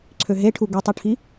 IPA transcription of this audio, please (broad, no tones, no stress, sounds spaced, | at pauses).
ǀʰ ø ɦ e ʈʰ u ɡ ɯ tˤ ɯ ʈʰ i